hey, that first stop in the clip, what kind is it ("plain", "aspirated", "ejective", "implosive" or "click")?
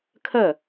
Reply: aspirated